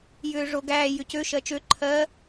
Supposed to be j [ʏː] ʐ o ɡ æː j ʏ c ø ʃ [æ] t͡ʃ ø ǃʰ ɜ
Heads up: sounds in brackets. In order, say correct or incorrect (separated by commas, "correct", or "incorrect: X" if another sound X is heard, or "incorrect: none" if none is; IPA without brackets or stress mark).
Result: correct, incorrect: ɜ